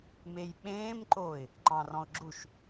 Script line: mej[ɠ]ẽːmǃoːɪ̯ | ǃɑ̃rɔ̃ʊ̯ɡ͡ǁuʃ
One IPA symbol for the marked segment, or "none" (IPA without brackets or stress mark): ɓ